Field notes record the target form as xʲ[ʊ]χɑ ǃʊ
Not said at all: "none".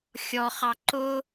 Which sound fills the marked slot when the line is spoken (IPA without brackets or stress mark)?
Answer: ɔ